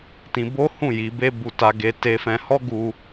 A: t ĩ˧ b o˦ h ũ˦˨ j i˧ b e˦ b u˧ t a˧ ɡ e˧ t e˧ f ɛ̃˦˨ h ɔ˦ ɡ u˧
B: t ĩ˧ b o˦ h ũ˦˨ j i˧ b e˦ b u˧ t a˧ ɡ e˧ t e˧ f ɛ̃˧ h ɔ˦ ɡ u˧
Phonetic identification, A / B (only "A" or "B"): B